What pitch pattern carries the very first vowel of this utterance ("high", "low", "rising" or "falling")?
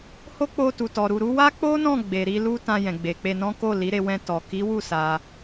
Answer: high